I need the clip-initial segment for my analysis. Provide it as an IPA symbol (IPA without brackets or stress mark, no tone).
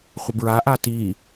χʷ